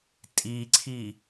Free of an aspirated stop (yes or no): no